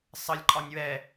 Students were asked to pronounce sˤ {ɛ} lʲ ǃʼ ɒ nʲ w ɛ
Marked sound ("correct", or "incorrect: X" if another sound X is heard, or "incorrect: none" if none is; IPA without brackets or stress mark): incorrect: ə